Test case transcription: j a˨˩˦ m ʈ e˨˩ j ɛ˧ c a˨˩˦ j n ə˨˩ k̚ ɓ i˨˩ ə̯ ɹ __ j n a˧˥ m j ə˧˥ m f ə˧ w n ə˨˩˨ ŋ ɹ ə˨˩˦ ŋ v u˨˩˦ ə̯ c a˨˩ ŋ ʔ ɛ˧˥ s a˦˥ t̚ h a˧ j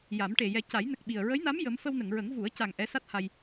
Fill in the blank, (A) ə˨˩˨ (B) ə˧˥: B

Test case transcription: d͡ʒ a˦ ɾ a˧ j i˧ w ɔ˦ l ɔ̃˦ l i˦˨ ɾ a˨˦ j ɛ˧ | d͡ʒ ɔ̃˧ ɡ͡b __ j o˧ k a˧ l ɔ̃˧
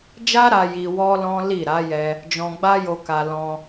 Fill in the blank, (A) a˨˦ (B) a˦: B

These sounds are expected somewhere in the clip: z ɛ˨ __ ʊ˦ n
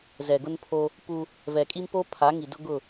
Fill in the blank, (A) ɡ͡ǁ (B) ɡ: B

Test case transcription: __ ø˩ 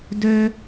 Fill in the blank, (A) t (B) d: B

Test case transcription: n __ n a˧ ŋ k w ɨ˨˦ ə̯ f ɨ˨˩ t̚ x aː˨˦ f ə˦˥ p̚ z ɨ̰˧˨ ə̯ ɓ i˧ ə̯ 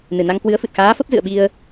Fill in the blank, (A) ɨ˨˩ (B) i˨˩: A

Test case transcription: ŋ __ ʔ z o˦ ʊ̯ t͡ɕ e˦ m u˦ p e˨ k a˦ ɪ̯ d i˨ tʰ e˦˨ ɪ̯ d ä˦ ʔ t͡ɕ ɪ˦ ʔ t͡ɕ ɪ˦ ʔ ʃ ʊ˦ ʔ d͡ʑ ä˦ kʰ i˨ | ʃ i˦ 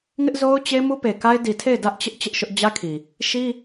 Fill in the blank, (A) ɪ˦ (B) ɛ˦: A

